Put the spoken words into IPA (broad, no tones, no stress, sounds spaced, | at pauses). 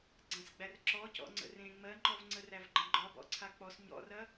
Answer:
ɡ͡ǀ ã s ɡ͡b æ r ǁ ɔ c ɔ̰ ŋ͡ǀ ə̰ r ẽ ŋ͡m ɜ ŋ͡ǃ ɔ v ŋ͡ǀ ə r æ v ɡ͡ǃ ə̃ ɡ͡ǃ ɒ b ɔ̰ ǀʰ a k͡p ɔ s ɲ ɔ̰ r ɐ